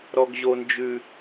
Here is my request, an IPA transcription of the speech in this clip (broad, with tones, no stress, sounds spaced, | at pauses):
ɾ ɔ˦ ɡ ʑ o˦ n d͡ʒ ʉ˦